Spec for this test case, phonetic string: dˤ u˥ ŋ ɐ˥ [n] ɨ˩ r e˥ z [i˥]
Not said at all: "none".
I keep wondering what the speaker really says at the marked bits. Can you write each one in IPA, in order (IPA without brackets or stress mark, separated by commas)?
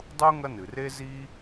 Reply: n, i˥